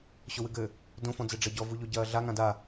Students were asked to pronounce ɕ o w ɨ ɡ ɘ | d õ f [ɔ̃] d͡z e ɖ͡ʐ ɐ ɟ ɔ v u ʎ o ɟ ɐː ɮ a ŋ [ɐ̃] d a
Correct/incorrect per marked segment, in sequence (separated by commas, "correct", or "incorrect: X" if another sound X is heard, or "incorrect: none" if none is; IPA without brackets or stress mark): correct, incorrect: ã